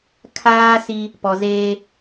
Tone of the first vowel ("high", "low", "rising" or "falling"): high